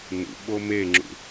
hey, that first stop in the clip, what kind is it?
implosive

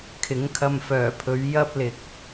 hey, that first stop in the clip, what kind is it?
aspirated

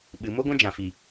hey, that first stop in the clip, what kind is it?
implosive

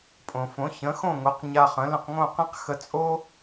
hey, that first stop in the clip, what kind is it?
ejective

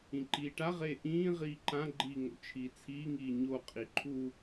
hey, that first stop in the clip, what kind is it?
click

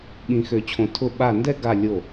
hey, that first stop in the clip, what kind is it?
implosive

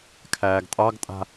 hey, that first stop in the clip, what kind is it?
aspirated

